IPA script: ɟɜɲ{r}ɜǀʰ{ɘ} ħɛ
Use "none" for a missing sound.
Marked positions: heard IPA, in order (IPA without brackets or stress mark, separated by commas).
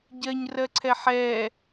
r, ɛ